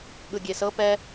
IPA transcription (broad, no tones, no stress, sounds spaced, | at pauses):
ɠ ɯ ɡʲ e s ɤ p ɛ